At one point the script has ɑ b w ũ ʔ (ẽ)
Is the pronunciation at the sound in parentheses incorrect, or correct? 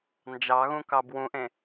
correct